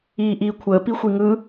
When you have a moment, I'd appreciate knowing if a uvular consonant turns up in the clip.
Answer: no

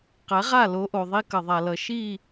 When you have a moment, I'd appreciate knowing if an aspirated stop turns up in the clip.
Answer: no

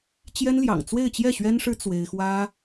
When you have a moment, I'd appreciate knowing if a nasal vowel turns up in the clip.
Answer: no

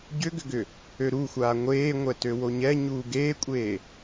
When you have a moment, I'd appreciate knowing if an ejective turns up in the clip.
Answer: yes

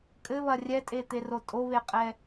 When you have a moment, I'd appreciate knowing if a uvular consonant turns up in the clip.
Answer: yes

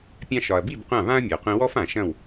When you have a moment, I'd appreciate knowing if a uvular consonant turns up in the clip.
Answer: yes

